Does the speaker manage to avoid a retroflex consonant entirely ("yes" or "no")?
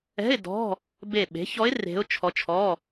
yes